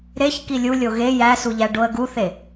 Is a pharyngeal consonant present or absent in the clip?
absent